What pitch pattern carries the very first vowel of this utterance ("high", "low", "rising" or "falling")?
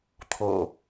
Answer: low